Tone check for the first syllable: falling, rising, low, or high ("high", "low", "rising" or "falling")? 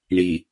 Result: low